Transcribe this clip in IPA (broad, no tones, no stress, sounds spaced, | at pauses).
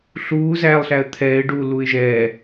ɬ uː z æː lˠ ɬ æ ə̯ t̪ʰ ɛː ɪ̯ ɖ uː l u ɪ̯ ʒ ɛː